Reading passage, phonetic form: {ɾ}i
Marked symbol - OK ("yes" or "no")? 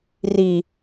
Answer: no